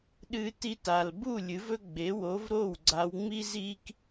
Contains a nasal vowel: no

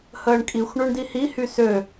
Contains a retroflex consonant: yes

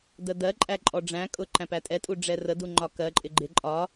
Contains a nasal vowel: yes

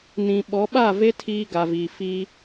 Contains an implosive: yes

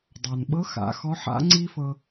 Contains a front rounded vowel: no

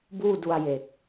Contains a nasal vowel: no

